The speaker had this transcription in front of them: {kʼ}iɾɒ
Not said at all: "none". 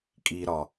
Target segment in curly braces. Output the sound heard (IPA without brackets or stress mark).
kʼ